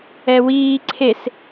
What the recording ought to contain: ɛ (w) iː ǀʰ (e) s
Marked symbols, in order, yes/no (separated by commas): yes, yes